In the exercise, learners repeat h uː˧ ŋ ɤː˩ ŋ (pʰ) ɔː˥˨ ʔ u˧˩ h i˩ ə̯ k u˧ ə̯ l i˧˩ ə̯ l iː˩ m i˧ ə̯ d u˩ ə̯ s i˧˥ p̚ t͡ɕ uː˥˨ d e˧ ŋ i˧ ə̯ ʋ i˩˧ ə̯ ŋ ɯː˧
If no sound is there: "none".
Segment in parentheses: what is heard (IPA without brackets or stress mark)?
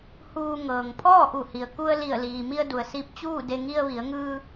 pʰ